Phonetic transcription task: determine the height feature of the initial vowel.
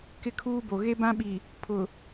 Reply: high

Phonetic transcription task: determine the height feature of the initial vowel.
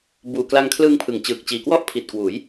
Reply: high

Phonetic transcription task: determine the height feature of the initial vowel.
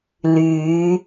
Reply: high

